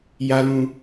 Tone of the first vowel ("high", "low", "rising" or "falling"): low